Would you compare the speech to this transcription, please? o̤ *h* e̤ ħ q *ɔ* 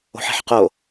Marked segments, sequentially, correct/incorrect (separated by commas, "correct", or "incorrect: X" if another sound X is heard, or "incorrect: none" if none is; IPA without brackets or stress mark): incorrect: ħ, incorrect: o